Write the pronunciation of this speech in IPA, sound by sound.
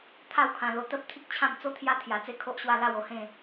t̪ʰ a˥˧ w kʰ ã˧ l o˧ t̪ ə˦ p̚ t̪ʰ i˦ k̚ t͡ɕʰ ã˥˧ m t͡s o˦ t̪ʰ j a˦ t̪ʰ j a˧ t͡s e˥˧ kʰ o˦ ʔ ɕ w a˥˧ l a˥˧ w o˥˧ h ẽ˥˧

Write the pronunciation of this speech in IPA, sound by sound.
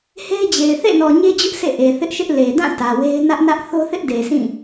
h e˦ ɪ̯ d͡ʑ e˨ ɪ̯ θ ḛ˦˨ n ɔ˨ ɲ e˦ d͡ʑ ʊ˦ ʔ sʰ ḛ˦˨ ʔ e˨ θ ɪ˦ ʔ ʃ ɪ˦ ʔ l e˨ d ã˦˨ t ä˨ w e˦ ɪ̯ n ä˦ ʔ n ä˦ ʔ θ o˦ θ ɪ˦ ʔ d e˨ sʰ ĩ˦˨

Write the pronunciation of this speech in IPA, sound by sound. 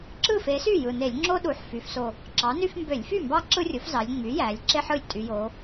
ǁ ɯ˥˩ f e˩˥ s y˥˩ j ɯ˨˩ n e˧˩˧ lʲ ŋ͡ǁ o˦ ɗ u˩˧ ħ f y˩˧ f s o˨˩ | ǁ ɑ˩˥ n y˦ f m b ø˧˩˧ lʲ f y˥˩ m b ɑ˦ ǁ ɯ˦ rʲ o˩˥ f z ɑ˩˧ lʲ ŋ͡m y˩˥ j æ˩˧ lʲ ǁ e˦ ħ ɯ˨˩ lʲ tʼ y˩˧ j o˩˧

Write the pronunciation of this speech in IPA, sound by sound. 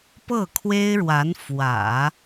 p ɤ˥˩ kʰ w e˥ ɪ̯ ɻ w a˧˥ n f w ä̰˨˩˦

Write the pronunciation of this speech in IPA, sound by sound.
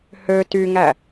h ø t y ŋ æ

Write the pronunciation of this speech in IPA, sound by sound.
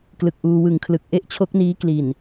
k l ɯ˨˩ k̚ ʔ uː˧ w ɯ˨˩ ŋ kʰ l ɯ˨˩ k̚ ʔ e˥˩ ʔ t͡ɕʰ o˦˥ k̚ n iː˦˥ k l i˨˩ n

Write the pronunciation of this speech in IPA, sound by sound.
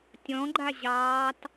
tʲ ɔ̃ ɡ͡ǃ a ʑ ɑː t

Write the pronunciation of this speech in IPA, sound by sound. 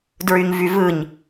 d ɹ y ɲ v y v ɯ ɲ

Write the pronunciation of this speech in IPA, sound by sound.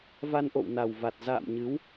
v a˧ n ʔ o̰˧˨ w n a˨˩ w v a˨˩ t̚ z a̰ː˧˨ m ɲ ɨ˨˦ w

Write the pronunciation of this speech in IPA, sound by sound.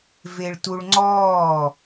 v e ɭ t u ɭ ŋ͡ǀ ɔː

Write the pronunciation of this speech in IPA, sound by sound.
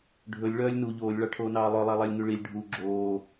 ɖʱ ɵ lʲ ɭ œː lʲ n u ʎ oː lʲ ɭ ɑ ʈʰ oː n ɑː lˠ œ lˠ æ lˠ æ lʲ ŋ y ɭ i lʲ ɖʱ u ɡ͡ǁ oː

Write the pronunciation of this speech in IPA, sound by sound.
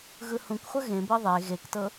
ɣ ɯ h ũ k χʷ ə ɣ ẽ b ɤ ðˤ e ɣ e k t ɤ

